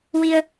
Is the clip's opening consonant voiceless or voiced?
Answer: voiced